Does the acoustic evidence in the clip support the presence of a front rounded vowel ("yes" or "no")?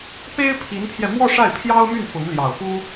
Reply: yes